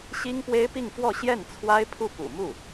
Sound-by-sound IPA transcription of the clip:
ɕ i˥ ŋ p w e˥ ɪ̯ p i˥˧ ŋ f w ɔ˥˧ ɕ j ɛ˥˩ n t͡sʰ w a˥ ɪ̯ pʰ u˥˩ p ṵ˨˩ m u˥˩

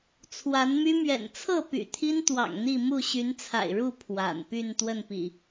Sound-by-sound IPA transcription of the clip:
t͡sʰ w a˨˦ n m y˦ m ɥ ɛ̰˨˩ n t͡sʰ ɤ˥˨ p y̰˨˩ t̪ʰ i˦ n t̪ w ɑ̰˨˩ ŋ n̪ i˥˨ m u˥˨ ɕ y˨˦ n t͡sʰ a̰˨˩ ɪ̯ ɻ u˥˨ pʰ w a̰˨˩ n p y˥˨ n t̪ w ə˥˨ n p ḭ˨˩

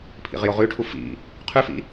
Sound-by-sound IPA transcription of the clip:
pʰ ḭ ʁ j o ʁ ʉ ʈʰ u f ḭ | qʰ ʉ f ḭ

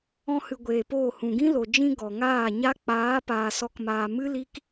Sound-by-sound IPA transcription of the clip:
ɔ̃˧ h ɨ˨ ɡʷ eː˨ p oː˦˨ h ũ˨ ɡ ĩ˦ l o˨ d͡ʒ ĩ˧ ɡ ɔ˨ ŋ aː˦˨ ɲ a˦ k͡p aː˨˦ p aː˧ s ɔ˦ k m aː˧ m ɨ˦ l i˦ k

